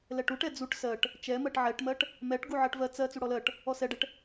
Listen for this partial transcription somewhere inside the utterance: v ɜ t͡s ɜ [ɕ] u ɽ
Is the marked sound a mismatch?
yes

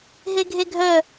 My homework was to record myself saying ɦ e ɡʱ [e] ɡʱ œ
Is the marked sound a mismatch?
no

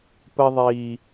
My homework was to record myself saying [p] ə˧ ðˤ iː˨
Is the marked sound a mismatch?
no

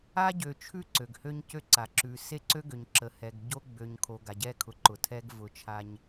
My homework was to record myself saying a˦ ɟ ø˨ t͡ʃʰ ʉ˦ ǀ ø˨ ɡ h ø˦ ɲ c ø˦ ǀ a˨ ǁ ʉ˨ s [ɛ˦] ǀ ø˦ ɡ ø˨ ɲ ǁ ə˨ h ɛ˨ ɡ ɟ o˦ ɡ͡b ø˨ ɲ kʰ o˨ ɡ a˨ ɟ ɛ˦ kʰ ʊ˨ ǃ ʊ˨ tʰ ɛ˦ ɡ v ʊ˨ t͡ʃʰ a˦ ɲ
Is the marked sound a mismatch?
yes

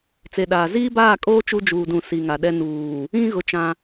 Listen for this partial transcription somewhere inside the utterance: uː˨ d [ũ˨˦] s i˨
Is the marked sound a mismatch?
yes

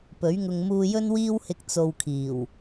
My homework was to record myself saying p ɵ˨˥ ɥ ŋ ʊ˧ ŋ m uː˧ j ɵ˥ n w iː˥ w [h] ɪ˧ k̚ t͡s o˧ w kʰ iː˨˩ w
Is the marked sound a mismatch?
no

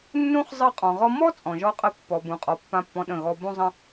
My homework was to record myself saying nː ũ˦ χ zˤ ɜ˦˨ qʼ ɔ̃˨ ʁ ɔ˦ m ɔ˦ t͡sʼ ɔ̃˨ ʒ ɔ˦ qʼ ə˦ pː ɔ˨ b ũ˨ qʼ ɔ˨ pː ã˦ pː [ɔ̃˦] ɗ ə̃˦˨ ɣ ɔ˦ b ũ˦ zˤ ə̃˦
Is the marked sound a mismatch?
no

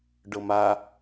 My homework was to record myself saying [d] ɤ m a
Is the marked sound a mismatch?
yes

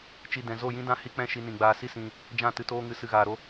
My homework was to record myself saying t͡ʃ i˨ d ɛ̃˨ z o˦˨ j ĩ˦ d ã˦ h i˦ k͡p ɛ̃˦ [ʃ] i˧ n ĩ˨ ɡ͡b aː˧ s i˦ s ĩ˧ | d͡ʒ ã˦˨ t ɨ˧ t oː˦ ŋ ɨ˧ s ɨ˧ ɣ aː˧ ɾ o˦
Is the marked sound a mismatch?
no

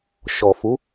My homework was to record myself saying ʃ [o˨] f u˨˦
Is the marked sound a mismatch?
yes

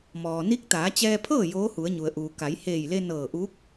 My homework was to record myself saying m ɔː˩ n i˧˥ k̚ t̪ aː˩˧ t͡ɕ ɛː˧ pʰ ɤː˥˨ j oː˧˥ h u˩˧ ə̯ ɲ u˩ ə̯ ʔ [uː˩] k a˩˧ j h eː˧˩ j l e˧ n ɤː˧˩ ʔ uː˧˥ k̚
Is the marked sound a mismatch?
no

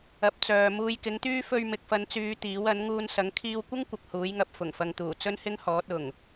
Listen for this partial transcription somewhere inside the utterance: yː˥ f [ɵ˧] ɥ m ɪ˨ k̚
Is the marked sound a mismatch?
no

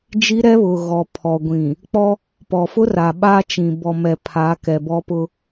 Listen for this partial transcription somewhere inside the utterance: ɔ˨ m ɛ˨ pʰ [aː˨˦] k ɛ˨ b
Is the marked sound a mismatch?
no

